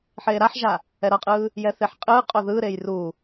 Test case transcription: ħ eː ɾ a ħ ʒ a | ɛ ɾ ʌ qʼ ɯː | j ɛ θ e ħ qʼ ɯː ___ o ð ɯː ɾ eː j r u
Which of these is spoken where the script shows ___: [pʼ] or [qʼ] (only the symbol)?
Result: qʼ